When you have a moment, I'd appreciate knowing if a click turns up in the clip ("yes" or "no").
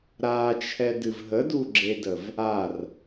yes